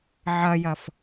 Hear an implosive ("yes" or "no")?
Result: no